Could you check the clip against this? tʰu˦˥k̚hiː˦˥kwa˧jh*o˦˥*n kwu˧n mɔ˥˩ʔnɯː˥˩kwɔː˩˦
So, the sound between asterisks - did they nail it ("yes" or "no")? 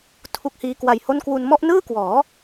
no